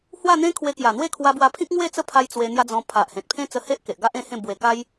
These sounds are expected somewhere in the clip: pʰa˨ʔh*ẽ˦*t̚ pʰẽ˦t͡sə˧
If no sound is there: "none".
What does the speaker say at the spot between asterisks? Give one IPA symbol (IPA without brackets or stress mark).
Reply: ẽ˨